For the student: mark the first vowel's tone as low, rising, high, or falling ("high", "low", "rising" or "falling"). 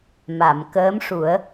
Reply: low